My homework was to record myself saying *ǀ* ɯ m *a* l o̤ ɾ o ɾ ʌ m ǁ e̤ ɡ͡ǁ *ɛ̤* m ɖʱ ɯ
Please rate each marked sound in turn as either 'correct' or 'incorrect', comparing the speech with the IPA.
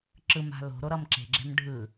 incorrect, incorrect, correct

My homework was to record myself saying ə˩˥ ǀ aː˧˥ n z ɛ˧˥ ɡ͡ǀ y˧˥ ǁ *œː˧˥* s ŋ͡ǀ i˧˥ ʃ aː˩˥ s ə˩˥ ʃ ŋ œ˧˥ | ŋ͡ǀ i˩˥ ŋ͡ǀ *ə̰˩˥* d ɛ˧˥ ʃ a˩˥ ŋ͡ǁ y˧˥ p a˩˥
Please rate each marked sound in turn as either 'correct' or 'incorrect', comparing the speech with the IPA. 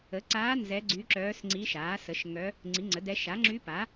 correct, incorrect

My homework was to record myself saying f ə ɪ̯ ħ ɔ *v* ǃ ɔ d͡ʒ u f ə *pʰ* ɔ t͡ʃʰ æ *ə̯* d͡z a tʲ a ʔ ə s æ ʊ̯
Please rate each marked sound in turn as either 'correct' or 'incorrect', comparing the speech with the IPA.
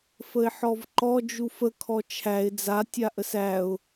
correct, incorrect, incorrect

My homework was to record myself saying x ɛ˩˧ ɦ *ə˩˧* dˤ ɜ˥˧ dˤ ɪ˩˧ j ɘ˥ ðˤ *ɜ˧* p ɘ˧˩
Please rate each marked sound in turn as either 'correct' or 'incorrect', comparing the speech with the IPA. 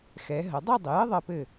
correct, correct

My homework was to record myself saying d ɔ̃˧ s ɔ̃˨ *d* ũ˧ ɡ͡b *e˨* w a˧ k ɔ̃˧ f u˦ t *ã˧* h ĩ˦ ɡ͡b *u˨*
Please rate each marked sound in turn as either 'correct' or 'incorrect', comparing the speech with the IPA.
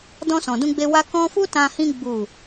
correct, incorrect, correct, incorrect

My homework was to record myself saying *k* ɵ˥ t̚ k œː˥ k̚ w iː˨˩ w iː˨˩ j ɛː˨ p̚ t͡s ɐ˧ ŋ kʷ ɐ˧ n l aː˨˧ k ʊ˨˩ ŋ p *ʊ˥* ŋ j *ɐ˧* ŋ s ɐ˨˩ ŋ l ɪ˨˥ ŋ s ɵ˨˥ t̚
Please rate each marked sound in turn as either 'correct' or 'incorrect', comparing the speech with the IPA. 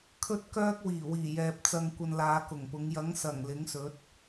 incorrect, incorrect, incorrect

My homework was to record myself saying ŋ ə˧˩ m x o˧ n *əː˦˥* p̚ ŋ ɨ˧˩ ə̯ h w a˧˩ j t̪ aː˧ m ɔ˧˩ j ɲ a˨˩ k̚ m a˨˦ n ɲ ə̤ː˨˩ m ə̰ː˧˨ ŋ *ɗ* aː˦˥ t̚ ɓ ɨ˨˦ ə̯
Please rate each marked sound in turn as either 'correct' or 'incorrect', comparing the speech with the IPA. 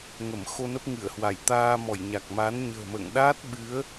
incorrect, correct

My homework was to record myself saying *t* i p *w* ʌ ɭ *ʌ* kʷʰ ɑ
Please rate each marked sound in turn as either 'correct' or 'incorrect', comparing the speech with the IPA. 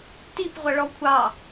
correct, incorrect, incorrect

